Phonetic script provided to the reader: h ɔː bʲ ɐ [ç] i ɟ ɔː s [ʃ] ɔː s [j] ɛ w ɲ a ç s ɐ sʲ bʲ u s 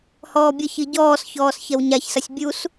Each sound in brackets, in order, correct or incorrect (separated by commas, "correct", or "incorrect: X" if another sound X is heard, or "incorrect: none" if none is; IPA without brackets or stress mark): correct, incorrect: ç, incorrect: ç